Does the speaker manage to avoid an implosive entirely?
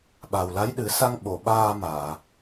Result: no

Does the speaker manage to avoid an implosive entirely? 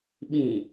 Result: no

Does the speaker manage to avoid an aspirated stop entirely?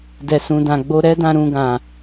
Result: yes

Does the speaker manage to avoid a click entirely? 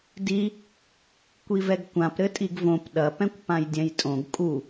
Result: yes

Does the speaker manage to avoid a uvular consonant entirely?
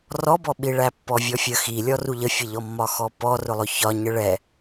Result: yes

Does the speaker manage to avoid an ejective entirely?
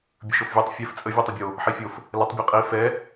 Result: no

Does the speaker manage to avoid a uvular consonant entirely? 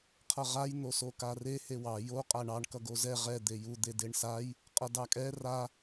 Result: no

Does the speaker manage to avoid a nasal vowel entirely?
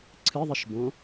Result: no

